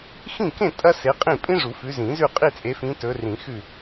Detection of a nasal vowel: present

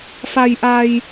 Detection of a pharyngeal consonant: absent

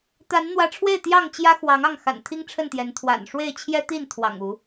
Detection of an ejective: absent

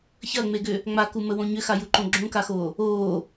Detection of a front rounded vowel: present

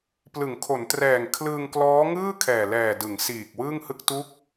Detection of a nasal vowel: absent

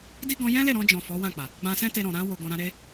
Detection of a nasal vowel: present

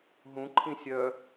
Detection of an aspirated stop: present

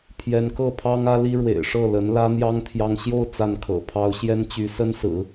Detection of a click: absent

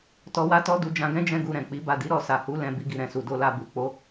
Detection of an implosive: absent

